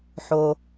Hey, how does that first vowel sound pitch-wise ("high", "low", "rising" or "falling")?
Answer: low